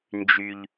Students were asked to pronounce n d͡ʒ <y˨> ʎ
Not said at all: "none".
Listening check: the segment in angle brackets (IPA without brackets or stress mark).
y˦